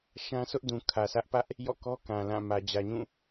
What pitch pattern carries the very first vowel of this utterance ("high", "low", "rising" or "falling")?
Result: high